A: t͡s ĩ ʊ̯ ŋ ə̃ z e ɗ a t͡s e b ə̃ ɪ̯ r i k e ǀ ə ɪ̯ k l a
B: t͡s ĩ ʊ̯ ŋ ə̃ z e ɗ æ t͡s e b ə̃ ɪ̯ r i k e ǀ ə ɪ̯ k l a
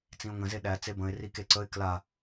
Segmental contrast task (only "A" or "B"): B